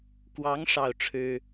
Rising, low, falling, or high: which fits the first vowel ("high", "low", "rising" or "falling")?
rising